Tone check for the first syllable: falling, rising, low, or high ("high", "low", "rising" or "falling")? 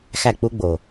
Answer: falling